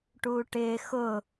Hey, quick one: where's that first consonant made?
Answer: retroflex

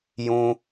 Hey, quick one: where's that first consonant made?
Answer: palate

